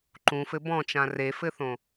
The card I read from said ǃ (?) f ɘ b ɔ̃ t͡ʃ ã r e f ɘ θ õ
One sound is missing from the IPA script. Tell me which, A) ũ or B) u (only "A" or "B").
A